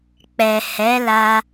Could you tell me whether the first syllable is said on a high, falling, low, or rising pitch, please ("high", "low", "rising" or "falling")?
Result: low